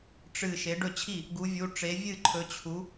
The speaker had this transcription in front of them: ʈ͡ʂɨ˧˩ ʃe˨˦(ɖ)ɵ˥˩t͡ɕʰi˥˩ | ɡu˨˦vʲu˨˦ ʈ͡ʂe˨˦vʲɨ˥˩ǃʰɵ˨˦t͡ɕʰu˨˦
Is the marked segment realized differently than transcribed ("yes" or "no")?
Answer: no